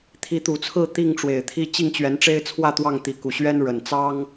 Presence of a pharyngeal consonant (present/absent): absent